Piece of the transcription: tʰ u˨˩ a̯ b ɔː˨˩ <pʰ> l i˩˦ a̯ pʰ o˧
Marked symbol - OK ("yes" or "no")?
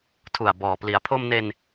no